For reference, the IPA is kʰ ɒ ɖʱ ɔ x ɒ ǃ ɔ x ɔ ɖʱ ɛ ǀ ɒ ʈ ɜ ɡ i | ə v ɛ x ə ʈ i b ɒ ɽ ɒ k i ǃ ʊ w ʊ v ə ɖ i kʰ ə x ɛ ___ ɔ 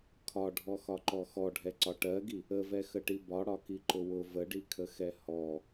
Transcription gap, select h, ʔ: h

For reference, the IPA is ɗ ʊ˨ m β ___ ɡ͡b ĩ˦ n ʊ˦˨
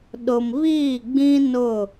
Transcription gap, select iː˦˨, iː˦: iː˦˨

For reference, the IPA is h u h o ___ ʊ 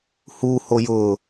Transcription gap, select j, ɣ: j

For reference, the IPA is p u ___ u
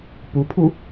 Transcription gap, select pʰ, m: pʰ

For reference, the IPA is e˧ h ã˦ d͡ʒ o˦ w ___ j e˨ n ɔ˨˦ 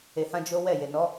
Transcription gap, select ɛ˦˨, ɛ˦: ɛ˦˨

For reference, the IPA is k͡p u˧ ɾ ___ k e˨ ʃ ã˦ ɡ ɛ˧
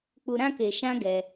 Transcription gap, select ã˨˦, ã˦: ã˦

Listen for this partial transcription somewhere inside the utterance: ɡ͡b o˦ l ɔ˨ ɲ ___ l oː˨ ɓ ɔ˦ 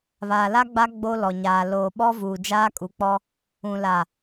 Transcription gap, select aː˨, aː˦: aː˨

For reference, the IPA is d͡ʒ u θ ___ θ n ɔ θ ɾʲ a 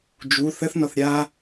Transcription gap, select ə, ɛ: ə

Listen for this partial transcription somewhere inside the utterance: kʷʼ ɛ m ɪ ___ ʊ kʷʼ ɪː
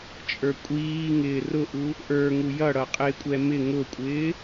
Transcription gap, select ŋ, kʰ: ŋ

